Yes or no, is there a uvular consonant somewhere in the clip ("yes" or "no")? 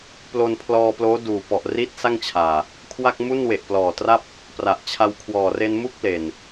no